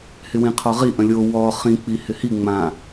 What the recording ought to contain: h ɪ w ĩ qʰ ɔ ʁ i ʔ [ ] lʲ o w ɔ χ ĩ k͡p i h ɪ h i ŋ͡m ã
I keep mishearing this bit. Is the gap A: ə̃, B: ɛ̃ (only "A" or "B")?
A